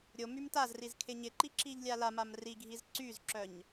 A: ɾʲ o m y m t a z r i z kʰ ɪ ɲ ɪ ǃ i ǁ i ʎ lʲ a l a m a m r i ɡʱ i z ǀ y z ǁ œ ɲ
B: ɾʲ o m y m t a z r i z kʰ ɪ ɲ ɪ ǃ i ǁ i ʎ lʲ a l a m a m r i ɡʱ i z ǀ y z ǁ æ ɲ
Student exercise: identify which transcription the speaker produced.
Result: A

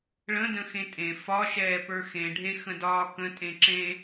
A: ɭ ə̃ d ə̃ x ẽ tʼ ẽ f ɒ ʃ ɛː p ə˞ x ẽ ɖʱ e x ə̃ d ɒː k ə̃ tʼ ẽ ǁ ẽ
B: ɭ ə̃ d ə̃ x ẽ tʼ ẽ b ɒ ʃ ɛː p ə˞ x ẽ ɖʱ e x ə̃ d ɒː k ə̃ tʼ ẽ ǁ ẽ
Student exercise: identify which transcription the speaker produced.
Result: A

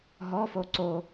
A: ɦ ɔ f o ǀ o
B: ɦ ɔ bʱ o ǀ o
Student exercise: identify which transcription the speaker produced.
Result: A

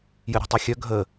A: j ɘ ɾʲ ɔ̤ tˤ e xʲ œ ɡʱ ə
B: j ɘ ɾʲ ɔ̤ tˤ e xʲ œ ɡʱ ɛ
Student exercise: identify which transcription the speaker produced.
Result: A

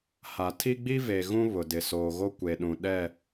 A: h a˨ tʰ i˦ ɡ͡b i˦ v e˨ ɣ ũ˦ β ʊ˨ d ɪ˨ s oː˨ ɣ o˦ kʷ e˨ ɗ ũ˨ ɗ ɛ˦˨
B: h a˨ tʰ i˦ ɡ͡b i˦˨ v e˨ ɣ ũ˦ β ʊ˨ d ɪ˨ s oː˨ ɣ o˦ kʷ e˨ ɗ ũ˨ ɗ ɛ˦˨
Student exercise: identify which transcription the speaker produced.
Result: A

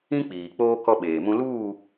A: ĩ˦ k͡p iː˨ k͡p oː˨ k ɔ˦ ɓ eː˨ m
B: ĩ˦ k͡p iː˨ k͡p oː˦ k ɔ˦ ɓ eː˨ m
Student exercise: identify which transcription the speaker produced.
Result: B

